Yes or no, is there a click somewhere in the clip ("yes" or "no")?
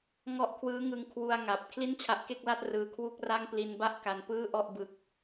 no